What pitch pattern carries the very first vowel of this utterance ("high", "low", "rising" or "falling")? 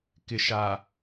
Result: low